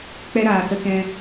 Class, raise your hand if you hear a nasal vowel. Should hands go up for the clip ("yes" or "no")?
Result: yes